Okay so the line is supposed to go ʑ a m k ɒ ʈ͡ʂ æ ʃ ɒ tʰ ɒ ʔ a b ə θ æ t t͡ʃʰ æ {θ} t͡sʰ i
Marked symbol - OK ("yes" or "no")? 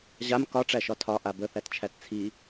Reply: no